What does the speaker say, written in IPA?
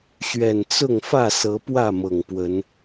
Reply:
ɕɥɛ˨˩nt͡sʊ˥˨ŋ fä˥˨sɤ˨˦pwä˥˨ mɤ˨˩ŋpwə˨˦n

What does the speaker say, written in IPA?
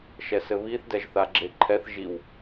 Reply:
ʃɛsɘβiθ dɛʒθaɡ͡ǁeǃʰɛθ ʒiw

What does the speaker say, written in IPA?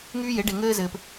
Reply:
ŋyː˦je˩˥ɖe˨ ŋɘː˦zɘː˨p

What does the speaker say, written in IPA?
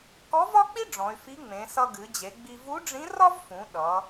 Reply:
kɔ˧˥vɒ˥k͡pi˥ ɖ͡ʐɔ̃˩˧y̯fi˧˥ŋ͡mẽ˩˧ sʌ˧ɡɨ˩˧d͡ʑe˩˧ɡ͡bi˧ vu˧˥ɖ͡ʐĩ˧˥rɒ˥vfũ˩˧ ɗʌ˩˧

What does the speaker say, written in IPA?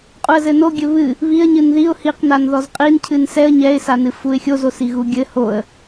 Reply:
qʼuə̯zɘnoɡʲɘ βɨ | βiə̯ɲɨn ðiʊ̯ hiqnan ðɔzqʼincʰɨn sɛə̯ ɲɛɪ̯sanɨ fuɪ̯xʲozosi ɣuɡʲɘ hoə̯

